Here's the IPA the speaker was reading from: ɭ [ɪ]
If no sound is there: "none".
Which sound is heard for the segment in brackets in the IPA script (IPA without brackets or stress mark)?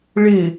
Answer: ɪ